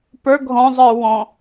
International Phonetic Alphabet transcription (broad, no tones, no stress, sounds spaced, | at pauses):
p ə˞ ɡʱ ɔ̃ zˤ ə˞ w ɔ̃